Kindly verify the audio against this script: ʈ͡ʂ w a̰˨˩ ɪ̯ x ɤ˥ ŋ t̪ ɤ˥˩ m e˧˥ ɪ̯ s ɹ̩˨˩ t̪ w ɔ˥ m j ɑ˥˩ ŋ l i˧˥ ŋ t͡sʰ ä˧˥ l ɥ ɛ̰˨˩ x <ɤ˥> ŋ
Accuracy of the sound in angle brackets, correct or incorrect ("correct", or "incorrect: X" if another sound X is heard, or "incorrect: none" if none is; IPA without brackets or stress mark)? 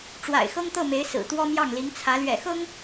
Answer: correct